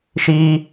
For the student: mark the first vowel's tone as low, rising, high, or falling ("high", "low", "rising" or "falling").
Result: high